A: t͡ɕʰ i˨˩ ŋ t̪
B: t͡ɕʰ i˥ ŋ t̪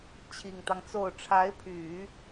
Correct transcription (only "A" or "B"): A